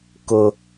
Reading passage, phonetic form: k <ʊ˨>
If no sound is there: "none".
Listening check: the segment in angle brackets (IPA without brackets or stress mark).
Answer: ʊ˦